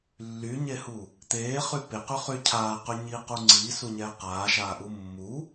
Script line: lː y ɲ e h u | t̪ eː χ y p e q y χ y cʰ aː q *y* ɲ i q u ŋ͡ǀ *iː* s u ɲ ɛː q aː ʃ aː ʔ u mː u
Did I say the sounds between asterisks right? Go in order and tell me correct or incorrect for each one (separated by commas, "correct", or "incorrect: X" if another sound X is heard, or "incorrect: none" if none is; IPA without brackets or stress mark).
correct, correct